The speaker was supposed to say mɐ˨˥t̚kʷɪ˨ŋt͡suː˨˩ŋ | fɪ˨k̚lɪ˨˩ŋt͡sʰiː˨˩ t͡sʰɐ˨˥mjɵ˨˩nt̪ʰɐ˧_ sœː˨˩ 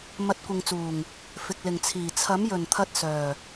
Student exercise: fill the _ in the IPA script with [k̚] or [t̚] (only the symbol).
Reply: t̚